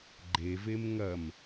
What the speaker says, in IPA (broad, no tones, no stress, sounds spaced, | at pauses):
ɡ͡ǃ e v e m ŋ ɐ m